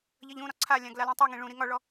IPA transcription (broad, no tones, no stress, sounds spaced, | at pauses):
ʎ ʌ ʎ ũ ɾ ɒ ǀʰ a lʲ ã ɡ l a l ũ tˤ u ŋ ĩ ɭ ũ ɾ i ŋ ɒ ɭ ɔ